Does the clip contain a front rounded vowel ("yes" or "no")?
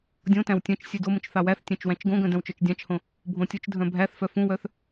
yes